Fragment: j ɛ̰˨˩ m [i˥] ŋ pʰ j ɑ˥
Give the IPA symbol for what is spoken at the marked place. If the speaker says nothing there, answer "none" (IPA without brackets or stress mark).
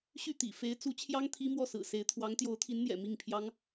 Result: i˥˩